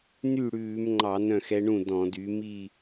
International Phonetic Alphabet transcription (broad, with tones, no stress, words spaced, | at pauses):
ny˥˩ɽʉː˧˩˧mŋ͡ǃɑ˧˩˧ nœ̃˥˩xɛ˧˥ɳũ˥˩ dɔ̃˧˩˧dy˩˥ mi˥˧